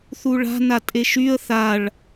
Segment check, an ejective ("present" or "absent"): present